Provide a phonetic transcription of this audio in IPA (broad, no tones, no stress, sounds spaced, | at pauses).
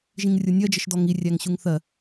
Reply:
ʒ ĩ ŋ rʲ ʊ nʲ ɜ d͡ʒ ə ʃ d ɔ ŋ i rʲ æ ŋ ɕ u ŋ θ ɜ